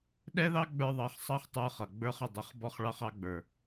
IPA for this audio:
ɗ ɛ˦ ð ɑ˦ ɡ͡b ə˞˧ ðˤ ɑ˨˦ χ sˤ ɑ˦ χ tˤ ə˞˧ χ ʌ˨ ɡ͡b ə˞˧ χ ə˨ dˤ ə˨˦ χ b ɔ˦ χ ɭ ɑ˧ χ ɑ˧ ɡ͡b ə˞˨

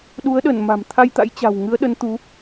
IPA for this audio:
ɗ u˨˦ ə̯ ɗ ə˧˩ n m a̤˨˩ m t̪ʰ a˧ j t̪ a̰˧˥ j t͡ɕ a̤˨˩ w ŋ ɨ˨˦ ə̯ ɗ ə˨˦ n t̪ u˨˦

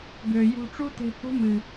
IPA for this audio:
ɡ ø˨ j ṳ˧ ʈ͡ʂ u˦ t̪ e̤˧ h ṳ˦ m ɨ˨

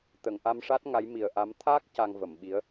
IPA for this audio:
t̪ ə˨˩˨ ŋ ʔ a˧ m ʂ a˦˥ t̚ ŋ a˧˥ j m i˨˩ ə̯ ʔ a˧˥ m t̪ʰ aː˦˥ k̚ c a˧ ŋ v ə˨˩˨ m ɓ i˧˥ ə̯

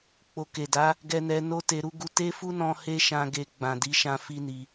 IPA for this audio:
k͡p o˨ k e˨ d a˨˦ | ɡ ɛ˧ n ɛ˧ n o˦ t e˧ ɾ u˦ ɡ u˧ t e˦ f u˦ n ɔ̃˧ h e˦ ʃ ã˧ ɡ e˧ ɡ͡b ã˨ d i˨˦ ʃ ã˧ f i˦ n i˧

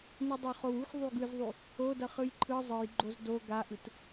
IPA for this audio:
n ɯ dˤ o χ o w u x ðˤ u ɡ ɯ z ðˤ u | o d ʌ χ ɯ j ǃʰ ɯ zˤ ɯ j ɡ͡ǃ o z d o ɡ a ʔ ɯ t

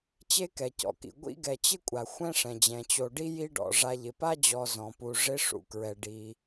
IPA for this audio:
t͡ɕ e˦ k ɛ˩ c ɔ̰˩ k ḭ˩ ɡʷ ḭ˦ ɡ ɛ˨ t͡ɕ ɪ˥ kʷʼ a˩ xʷ ɛ̃˥ ʂ ɛ̃˩ d͡ʑ ɛ̃˩ t͡ɕ o˨ ɖ i˥ j i˦ ɖ ɔ̰˩ ʐ a˨ ʎ ɪ˩ p a˥ d͡ʑ ɔ˨ z ɔ̃˩ p u˨ ʐ ɪ˦ ʂ ṵ˩ k ɹ ɛ˩ ɖ i˩

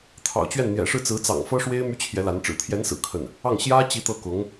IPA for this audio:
t̪ʰ ɑ̰˨˩ ʊ̯ t͡ɕ ɥ ɛ˥˩ n n̪ j ɛ̰˨˩ ʂ ɻ̩˥˩ t͡s ɹ̩˧˥ t͡s ɑ̰˨˩ ŋ f ɤ˥ ʂ w e˥ ɪ̯ m y˥ t͡ɕʰ j ɛ˧˥ l a˧˥ n ʈ͡ʂ ɻ̩˨˩ t̪ʰ j ɛ˧˥ n s ɹ̩˨˩ kʰ ə˥˩ n | ɑ˥˩ ŋ ɕ j ä˥ t͡ɕ i˧˥ t̪ ɤ˥˩ k ʊ˧˥ ŋ

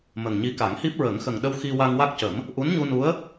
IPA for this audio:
m ə˨˩ ŋ ɲ i˧˥ k a˨˩˦ ŋ h i˦˥ p̚ ɹ ə˨˩˦ ŋ x ə˨˩ ŋ ɗ ə˧ w x i˧ w a˧ ŋ w a˦˥ k̚ c ə˨˩˦ m | ʔ u˧˥ n ɲ u˧ n u˧˥ ə̯

